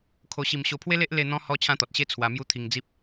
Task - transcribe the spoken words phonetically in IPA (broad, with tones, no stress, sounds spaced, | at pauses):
kʰ o˧ ɕ i˧ m ɕ o˧ pʰ w e˦ l e˦ ʔ l e˧ n̪ ɔ̃˧ h ɔ˧ t͡ɕʰ ã˦ t̪ ɔ˨ t̚ ɕ e˦ t͡sʰ w a˧ m j u˦ t̪ʰ i˧ ŋ d͡z i˦ p̚